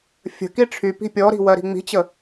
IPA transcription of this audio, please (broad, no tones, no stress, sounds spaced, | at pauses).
fʲ ə̤ k i ʈ͡ʂʰ y p i̤ pʲ ɔ ɾ i̤ w ɜ ɾ i̤ ŋ͡m i̤ t͡ɕ ə